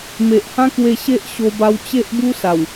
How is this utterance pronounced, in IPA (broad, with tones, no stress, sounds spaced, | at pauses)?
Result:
m e˨ ʔ h ã˦ k w e˧ ɕ e˦ ʔ ɕ o˧ b a˧ w t͡ɕ e˦ ʔ b u˦ s a˨˩ w